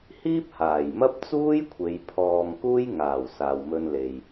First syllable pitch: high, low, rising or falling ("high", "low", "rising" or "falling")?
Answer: high